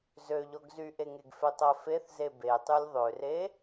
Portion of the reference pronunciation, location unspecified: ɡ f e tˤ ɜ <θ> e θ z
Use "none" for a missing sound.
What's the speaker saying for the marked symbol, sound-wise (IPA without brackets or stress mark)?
f